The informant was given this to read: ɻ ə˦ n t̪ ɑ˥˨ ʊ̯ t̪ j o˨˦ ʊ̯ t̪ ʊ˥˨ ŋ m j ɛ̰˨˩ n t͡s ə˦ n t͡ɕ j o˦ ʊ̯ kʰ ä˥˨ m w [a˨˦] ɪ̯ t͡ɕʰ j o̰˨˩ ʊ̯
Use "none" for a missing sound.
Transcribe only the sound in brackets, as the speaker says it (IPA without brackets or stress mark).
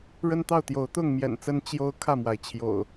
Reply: a˩